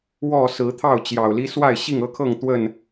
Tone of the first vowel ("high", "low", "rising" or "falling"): falling